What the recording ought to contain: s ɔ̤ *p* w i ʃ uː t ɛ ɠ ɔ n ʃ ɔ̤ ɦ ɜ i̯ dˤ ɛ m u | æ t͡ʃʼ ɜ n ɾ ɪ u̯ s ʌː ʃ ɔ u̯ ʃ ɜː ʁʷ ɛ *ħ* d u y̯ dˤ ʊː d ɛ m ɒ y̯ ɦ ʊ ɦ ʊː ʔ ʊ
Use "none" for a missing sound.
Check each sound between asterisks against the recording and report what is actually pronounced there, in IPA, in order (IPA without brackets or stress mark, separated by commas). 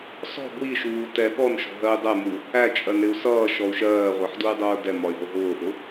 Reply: b, ħ